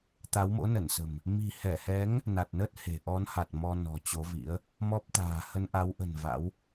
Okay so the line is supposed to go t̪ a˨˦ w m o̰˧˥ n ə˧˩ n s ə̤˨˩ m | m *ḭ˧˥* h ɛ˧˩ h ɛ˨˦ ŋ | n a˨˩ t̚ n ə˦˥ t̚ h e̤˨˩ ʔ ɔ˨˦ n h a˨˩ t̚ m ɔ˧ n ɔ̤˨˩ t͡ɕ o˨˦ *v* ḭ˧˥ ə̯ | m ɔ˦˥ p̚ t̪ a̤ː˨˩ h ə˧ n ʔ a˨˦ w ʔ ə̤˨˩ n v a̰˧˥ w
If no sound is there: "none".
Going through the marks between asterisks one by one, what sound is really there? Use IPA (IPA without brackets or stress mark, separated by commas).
i̤˨˩, v